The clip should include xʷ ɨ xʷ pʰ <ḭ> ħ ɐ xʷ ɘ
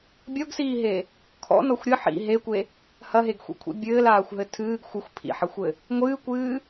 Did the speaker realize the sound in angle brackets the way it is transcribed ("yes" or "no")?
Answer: yes